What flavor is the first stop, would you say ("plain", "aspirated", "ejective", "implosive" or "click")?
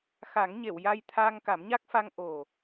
aspirated